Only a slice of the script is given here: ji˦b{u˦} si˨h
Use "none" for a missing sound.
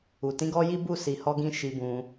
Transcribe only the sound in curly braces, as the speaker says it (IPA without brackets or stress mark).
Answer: u˦˨